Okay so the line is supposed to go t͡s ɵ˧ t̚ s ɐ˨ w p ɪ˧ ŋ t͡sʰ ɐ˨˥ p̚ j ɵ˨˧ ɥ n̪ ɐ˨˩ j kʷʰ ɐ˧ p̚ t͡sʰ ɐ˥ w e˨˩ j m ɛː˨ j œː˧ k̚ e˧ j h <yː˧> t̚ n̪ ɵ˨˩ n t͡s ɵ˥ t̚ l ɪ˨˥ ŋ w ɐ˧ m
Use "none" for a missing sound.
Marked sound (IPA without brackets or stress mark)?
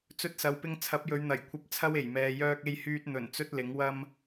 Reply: yː˧